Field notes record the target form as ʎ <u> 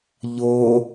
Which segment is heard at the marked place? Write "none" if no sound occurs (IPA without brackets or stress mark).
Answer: o